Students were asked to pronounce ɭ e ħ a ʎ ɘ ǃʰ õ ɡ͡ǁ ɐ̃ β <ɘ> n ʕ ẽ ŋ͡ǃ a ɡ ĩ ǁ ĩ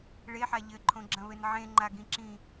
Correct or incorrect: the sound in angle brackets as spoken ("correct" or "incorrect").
correct